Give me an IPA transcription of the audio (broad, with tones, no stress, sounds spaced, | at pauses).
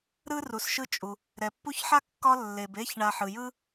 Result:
ɾ ɯ˥ r u˩ s ʃ ɯ˦ t͡ʃʼ u˩ | ɾ ɛ˩ pː u˦ ç ħ a˥ kː ɒ˦ lː e˩ b e˦ ç ɳ a˨ ħ ɯ˩ j ɯ˥